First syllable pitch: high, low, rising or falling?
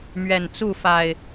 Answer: low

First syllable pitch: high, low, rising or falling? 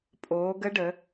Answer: rising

